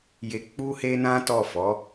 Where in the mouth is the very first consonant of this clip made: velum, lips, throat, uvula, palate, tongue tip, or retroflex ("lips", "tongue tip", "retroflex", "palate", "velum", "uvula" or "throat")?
palate